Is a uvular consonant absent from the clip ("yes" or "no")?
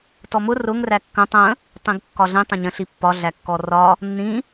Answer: yes